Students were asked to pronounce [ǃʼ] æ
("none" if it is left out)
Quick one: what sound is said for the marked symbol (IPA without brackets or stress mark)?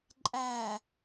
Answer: ǃʼ